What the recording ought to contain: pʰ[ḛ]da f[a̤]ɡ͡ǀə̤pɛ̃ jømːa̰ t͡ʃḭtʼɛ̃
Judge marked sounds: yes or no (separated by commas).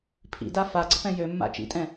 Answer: no, no